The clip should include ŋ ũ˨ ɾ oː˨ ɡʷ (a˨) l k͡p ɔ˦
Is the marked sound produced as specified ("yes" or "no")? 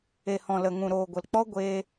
no